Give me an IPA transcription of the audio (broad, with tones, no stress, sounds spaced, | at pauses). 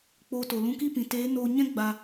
k͡p oː˧ t o˨ l ũ˧ k i˦˨ p ĩ˨ t eː˨˦ n oː˧ ɲ ɛ̃˦ ɡ͡b a˧